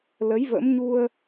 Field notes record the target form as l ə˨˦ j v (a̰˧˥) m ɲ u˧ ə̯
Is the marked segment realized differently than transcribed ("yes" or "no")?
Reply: yes